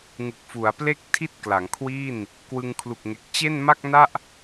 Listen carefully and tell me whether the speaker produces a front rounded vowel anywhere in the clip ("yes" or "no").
no